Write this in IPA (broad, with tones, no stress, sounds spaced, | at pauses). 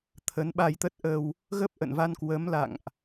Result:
t̪ʰ ə˨˦ n ɓ a˧ j t̪ ə˦˥ t̚ ʔ ə˧ w | ɣ ə˦˥ p̚ ʔ ə̰˧˨ n v a˧ n k w ə˨˦ m l a̰˧˨ ŋ ʔ